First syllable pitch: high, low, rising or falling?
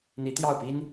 rising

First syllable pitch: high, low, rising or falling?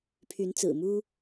rising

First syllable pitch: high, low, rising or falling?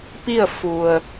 falling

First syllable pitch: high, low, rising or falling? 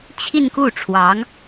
falling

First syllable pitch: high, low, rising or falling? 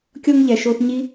high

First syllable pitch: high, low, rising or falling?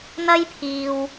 high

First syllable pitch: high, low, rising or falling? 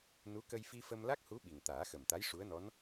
rising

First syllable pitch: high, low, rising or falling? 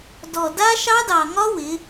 low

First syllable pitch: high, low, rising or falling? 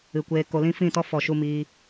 low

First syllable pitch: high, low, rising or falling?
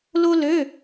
high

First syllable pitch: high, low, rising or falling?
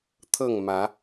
falling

